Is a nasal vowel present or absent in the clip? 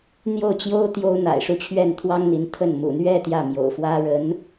absent